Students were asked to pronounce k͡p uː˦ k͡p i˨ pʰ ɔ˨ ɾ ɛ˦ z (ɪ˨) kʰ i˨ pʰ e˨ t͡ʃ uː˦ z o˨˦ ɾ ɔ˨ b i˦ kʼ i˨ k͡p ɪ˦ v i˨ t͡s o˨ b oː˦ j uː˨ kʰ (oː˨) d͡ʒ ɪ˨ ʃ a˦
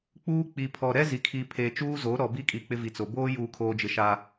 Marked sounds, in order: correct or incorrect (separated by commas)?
incorrect, correct